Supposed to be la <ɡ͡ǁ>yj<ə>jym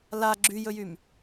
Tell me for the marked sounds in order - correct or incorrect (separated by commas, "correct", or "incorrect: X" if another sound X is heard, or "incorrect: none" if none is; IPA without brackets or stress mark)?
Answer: correct, incorrect: ɵ